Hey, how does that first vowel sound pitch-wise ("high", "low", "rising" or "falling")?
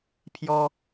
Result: high